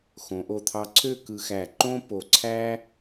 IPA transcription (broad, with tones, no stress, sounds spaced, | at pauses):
x õ˩˧ ʔ o˧˩ t̪ʰ ɑ˧ ǀʰ ø˥˧ k ɯ˧ x æ˧˩ ǃ õ˥ p o˧˩ ǀʰ æ˥